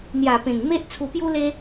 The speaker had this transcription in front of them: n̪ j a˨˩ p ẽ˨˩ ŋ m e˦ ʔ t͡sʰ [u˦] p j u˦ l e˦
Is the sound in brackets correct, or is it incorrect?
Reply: incorrect